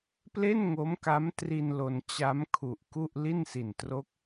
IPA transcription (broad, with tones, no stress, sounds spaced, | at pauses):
p l e˥˩ n ŋ o˦˥ m k a˦˥ m t r i˧ n l o˧ n t͡ɕ a˦˥ m kʰ u˨˩ ʔ k u˥˩ ʔ l i˥˩ n s i˨˩ n t r o˦˥ k̚